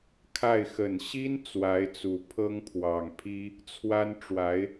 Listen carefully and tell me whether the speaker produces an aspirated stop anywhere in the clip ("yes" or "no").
yes